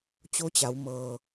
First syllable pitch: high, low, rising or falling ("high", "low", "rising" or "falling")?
rising